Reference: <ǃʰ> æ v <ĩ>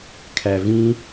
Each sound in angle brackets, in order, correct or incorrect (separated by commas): incorrect, correct